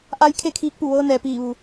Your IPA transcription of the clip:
ʔ a˧ j kʰ e˥˨ kʰ iː˧˥ k̚ p u˧˩ ʋ ɤː˧ n ɛː˩ p iː˧˩ ʋ u˩

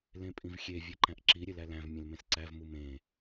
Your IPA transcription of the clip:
l ẽ pʼ ĩ v xʲ e vʲ e ǃ æ̃ ʔ ǁ i ɾʲ e l æ l æ̃ v mʲ ẽ l m ẽ s ǀ æ v m u m ẽ

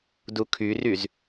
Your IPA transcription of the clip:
d u kʰ y r y z

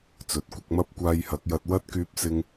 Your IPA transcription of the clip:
t͡s ɵ˨ t̚ kʷ ɐ˧ k̚ m ɐ˥ p̚ kʷ aː˧ j h ɐ˨˥ k̚ j ɐ˧ t̚ w ɐ˥ t̚ k yː˥ p̚ s ɪ˥ ŋ

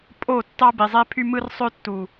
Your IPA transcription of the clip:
pʼ o˦˨ tː ɑ˦ b i˨ zˤ e˦ pʰ y˦ m ɯ˦ r sˤ ø˦ tː u˨

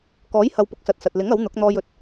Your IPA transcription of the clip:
k ɔː˨˥ j h ɐ˨ w p ʊ˨˥ k̚ s ɐ˨ t̚ s ɐ˨ t̚ l ɪ˨˥ ŋ ɐ˨˥ w n̪ ʊ˨˥ k̚ n̪ ɔː˧ j ɵ˨ t̚

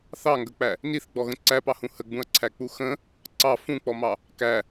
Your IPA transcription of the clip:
θ ɑ ŋ ɡ ə k͡p æ | n i θ ɡ͡b ɔ ɣ ə̃ ǀ æ p ɑ h ũ h ə ɡ͡b ũ ɐ̯ ǀʰ æ k͡p u x ə̃ | ǀ ɑ f ũ k͡p ɔ m ɑ | k æ

